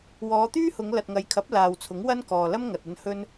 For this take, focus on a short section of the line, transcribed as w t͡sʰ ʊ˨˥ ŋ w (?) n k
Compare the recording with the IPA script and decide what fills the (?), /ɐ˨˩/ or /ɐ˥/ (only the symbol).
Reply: ɐ˥